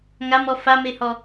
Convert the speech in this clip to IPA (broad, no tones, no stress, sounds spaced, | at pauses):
ŋ a m ɔ f a m e h ɔ